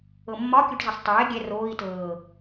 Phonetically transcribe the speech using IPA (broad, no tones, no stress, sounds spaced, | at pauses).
ɤ mː ɒ kʲ u ʈ z ʌ sˤ tˤ ɛː ɡʲ ɛ r oː i̯ t ɤː